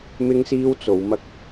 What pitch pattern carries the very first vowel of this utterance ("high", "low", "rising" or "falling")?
high